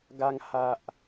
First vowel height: low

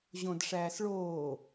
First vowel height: mid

